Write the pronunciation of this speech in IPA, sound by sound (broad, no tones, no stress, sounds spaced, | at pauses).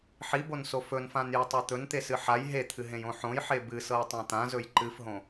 ħ i b o n s o f ɵ n f ã n j e tˤ ɤ t̪ ɵ n t̪ e s ɨ ħ a j ɦ e t̪ʰ ɨ ɦ ẽ j õ ħ õ j ħ e b ɨ s ɤ j tˤ ã t̪ ã z ɵ j ǃ ɨ f ɦ õ